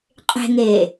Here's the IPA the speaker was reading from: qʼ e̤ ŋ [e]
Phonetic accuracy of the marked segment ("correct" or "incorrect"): incorrect